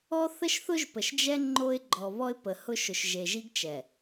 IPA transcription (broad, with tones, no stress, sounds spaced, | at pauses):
ɔ˦ θ ə˦ ʃ θ ʊ˦ ʒ p ə˨ ʃ d͡ʒ ɛ˦ ŋ͡ǃ o˦ ɪ̯ ɡ͡ǃ ɔ˨ β ɔ˦ ɪ̯ p ə˨ h ʊ˦ ʃ ʊ˨ ʃ ʒ e˨ ʒ i˦ ɡ t͡ʃ ɛ˨